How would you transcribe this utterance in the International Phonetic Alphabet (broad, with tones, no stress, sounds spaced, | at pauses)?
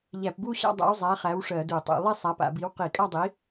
ʎ æ˧˩˧ p b u˥˧ ɕ a̰˥˧ dˤ æ̰˨˥ w zˤ æ˨˥ χ æ˨˥ w ʂ ɜ˧˩˧ d u˧˩˧ tˤ ṵ˧˩˧ lˠ i˥˧ sˤ a˨˥ p a̰˧˩˧ b i˨˥ w q i˧˩˧ kʼ a˥˧ dˤ i˨˥